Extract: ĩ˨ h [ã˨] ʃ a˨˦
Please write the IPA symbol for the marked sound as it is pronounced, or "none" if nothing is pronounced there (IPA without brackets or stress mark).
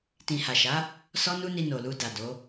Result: a˨